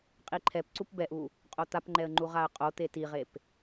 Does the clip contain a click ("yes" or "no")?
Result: yes